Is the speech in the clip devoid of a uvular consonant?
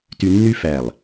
yes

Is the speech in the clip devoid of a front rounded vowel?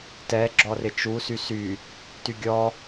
no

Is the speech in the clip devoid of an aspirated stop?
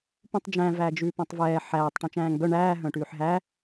yes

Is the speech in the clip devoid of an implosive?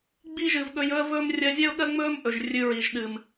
no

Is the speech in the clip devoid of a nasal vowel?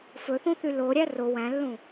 no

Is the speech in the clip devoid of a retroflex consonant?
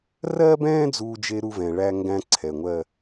no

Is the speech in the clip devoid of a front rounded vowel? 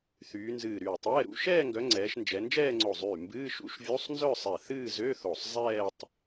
no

